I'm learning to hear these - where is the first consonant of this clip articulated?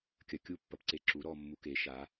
velum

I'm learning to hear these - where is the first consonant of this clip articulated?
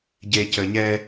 palate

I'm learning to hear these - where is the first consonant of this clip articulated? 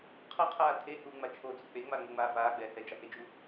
uvula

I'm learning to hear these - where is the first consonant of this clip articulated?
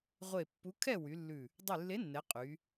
uvula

